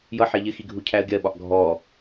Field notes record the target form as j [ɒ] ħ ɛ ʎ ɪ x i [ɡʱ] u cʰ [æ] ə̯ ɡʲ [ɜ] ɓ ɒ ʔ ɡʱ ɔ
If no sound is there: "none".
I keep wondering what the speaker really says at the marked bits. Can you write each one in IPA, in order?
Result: ʌ, ɡʱ, æ, ɜ

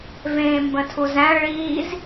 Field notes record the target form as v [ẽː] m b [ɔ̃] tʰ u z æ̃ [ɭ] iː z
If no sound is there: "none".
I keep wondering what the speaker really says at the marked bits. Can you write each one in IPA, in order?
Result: ẽː, ə̃, ɭ

